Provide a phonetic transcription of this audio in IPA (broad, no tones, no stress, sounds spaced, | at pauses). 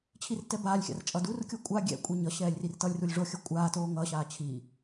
t͡ɕʰ i r t ɛ b aː lʲ xʲ a̰ r t͡ʃʼ ʌ d u r kʲ o kʷʼ a ɡʲ ɛ̰ kʷʼ i ɲ ʌ ɕ ɛː lʲ r i r t ʌ lʲ r u lʲ ʐ o xʲ ʌ kʷʼ aː t oː ŋ ʌ ɕ aː t͡ɕʰ i